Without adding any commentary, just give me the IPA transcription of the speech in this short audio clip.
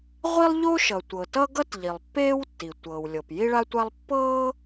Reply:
ʁʷ i˥ lˠ ʎ o˥ ʃ ʌ˩ tʷ ɤ˩ t ʌ˥ ɡ ʌ˥ t ʎ i˩ lˠ pː eː˥ w tː i˩ tʷ ɤː˩ w lʲ ɤ˩ p j i˥ ɭ a˥ tʷ a˥ lˠ pː ɤː˥

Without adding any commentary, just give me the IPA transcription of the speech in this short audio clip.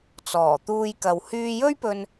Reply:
t͡s ɔː˨˩ t̪ uː˧ j k ɐ˨ w h yː˧ j ɵ˥ ɥ p ɵ˧ n

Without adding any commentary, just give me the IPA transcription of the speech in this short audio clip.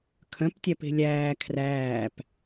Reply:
kʰ œ̃ p tʲ æ p e̤ lʲ æː kʰ r æː p

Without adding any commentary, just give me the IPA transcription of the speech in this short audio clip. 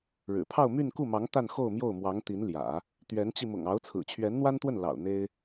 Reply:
ɻ ɻ̩˨˩ pʰ ɑ˥˧ ʊ̯ m y˥˧ n k u˥˩ m ɑ˧˥ ŋ t̪ a˥˧ n x o˥˧ ʊ̯ m j o˥˩ ʊ̯ m w ɑ˧˥ ŋ t̪ i˧˥ n l j ä̰˨˩˦ | t̪ ɥ ɛ˧˥ n t͡ɕ i˧ m ʊ̰˨˩ ŋ ɑ˧˥ ʊ̯ t͡sʰ ɹ̩˨˩ t͡ɕʰ ɥ ɛ˧˥ n n̪ w a˥ n t̪ w ə˥˩ n l ɑ̰˨˩ ʊ̯ n̪ e˥ ɪ̯

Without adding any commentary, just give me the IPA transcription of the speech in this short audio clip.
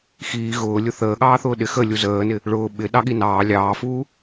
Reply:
x iː ɣ ʊː lʲ ʊ θ əː ɠ ɑː θ ʊː ɗ ɪ x ə lʲ u z əː n ɪ | ɭ ʊː ɓ ɪ ɗ ɑ ɠ i n ɑː lʲ ɑː f uː

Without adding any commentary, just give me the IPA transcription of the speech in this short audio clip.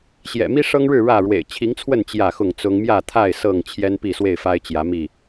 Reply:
ɕ j ɛ̰˨˩ m i˦ ʂ ɤ˦ ŋ ɻ ɻ̩˥˨ ɻ ä˥˨ ɻ w ḛ˨˩ ɪ̯ t͡ɕʰ i˨˦ ŋ t͡sʰ w ə˥˨ n t͡ɕ j ä˥˨ x ʊ˥˨ ŋ t͡s ʊ˦ ŋ m j ä˥˨ t̪ʰ a˥˨ ɪ̯ s ɤ˥˨ ŋ t͡ɕʰ j ɛ˦ n p i˥˨ s w e˥˨ ɪ̯ f a˦ ɪ̯ t͡ɕ j ä˨˦ m i˥˨

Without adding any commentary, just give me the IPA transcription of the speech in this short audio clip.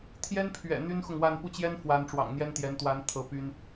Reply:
t̪ʰ j ɛ˥ n pʰ ɥ ɛ̰˨˩ n̪ y˥ n x ʊ˨ ŋ w a˥˧ n p u˥˩ t͡ɕ j ɛ˥ n f w a˧˥ n ʈ͡ʂ w ɑ̰˨˩ ŋ n̪ j ɛ˥ n t̪ j ɛ˧˥ n t̪ w a˧˥ n t̪ʰ ɤ˧˥ p y˥ n

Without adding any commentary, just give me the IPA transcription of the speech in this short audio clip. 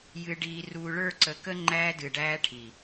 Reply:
j ɨ˨ ɖ iː˨ r uː˨ ɭ ə˞˦˨ ǀ ə˨ k ə˦ ŋ͡ǃ æː˦ d ɨ˨ ɖ æː˦ ʈʰ i˨

